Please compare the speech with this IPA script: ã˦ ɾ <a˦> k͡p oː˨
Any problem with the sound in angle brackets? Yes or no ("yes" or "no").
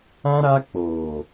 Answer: no